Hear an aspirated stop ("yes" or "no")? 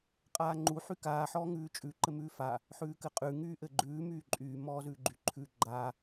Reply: yes